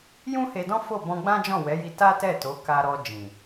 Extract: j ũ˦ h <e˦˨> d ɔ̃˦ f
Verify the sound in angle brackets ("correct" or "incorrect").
incorrect